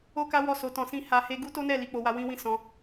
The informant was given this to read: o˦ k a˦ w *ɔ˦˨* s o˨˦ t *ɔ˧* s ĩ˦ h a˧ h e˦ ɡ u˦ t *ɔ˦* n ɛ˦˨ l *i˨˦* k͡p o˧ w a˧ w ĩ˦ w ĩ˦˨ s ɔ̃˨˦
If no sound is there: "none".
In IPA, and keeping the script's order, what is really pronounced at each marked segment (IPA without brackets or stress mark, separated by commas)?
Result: ɔ˦˨, ɔ̃˧, o˦, i˨˦